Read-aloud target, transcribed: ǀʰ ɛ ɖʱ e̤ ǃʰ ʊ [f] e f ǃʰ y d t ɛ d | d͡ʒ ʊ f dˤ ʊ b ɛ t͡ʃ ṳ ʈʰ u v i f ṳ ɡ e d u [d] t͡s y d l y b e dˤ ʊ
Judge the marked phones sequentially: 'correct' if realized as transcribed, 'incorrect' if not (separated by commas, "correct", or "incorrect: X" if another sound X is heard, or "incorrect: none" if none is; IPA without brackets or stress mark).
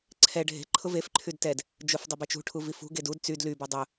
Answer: incorrect: v, correct